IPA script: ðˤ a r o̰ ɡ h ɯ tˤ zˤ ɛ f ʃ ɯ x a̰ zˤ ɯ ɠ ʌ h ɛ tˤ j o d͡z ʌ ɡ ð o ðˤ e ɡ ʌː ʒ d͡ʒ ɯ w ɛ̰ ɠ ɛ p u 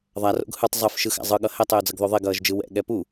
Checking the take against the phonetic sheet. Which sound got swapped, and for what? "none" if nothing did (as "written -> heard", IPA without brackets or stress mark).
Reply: none